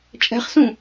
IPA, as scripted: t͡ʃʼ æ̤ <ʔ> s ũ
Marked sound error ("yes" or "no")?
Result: yes